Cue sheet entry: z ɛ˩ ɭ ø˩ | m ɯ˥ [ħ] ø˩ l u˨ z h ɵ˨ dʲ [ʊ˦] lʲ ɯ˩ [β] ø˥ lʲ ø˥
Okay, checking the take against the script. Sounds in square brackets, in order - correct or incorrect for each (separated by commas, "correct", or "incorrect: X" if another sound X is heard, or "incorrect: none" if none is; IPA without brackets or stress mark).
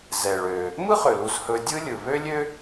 incorrect: χ, incorrect: ɯ˦, correct